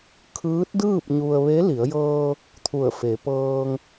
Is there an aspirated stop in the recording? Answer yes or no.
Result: yes